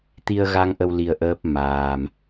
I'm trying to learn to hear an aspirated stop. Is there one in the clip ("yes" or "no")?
no